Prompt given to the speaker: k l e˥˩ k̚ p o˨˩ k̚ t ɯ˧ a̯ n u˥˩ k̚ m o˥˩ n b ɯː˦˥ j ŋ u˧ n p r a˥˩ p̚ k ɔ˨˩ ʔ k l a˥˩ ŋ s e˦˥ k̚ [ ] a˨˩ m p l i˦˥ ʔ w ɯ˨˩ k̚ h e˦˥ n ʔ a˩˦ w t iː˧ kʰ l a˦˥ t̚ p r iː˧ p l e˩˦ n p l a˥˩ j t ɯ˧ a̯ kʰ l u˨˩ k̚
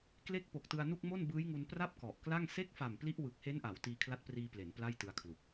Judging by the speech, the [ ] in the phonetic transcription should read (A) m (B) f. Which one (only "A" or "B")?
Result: B